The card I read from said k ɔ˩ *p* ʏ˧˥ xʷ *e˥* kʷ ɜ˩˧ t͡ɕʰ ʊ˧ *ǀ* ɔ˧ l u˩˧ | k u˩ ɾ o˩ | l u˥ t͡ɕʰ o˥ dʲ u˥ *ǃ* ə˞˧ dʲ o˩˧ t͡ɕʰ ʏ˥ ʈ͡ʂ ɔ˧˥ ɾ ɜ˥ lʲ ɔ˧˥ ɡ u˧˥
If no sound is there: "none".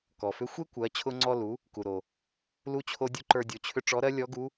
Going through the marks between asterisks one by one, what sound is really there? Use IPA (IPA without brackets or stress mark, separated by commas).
f, e˥, ŋ͡ǀ, ǃ